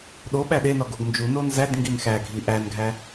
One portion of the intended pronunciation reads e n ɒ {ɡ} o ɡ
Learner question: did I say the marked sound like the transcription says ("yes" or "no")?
yes